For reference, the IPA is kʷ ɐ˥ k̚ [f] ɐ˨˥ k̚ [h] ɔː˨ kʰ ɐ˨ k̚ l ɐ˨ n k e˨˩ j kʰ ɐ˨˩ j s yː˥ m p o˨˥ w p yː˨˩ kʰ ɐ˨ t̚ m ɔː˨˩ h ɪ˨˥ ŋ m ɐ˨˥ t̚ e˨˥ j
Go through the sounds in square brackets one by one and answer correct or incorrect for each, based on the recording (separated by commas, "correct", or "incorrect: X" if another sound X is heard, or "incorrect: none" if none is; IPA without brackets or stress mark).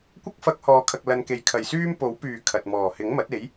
correct, correct